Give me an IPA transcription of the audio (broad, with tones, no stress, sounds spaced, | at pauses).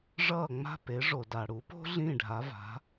ʐ ʌː˥˩ ŋ͡m a̤˥˩ p e˩˥ ʐ o˩ d a˩ ɽ u˩˥ p o̤˥ ɮ ĩ˥˩ ɖʱ a˩˥ v a̤˩˥